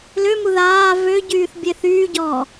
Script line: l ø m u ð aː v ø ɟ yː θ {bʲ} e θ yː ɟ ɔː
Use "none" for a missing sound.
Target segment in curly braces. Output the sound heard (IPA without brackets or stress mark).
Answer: bʲ